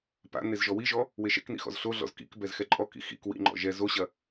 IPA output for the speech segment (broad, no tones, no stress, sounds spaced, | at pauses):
p a̰ n e z ʒ ɔ w i ʒ ɔ | w e ʃ ɛ̰ k n ḭ x ɔ̰ z ɬ o ɮ ɔ̰ z k ḭ k b ɛ z x ɛ ǃʼ ɔ k ḭ x ḭ k w ḭ ŋ͡ǃ ɔ̰ ʒ ɛ z o ɕ ɐ